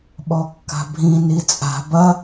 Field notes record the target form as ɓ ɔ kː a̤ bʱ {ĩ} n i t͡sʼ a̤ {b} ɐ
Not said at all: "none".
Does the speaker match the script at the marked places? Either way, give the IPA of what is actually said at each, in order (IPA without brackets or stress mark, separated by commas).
ĩ, b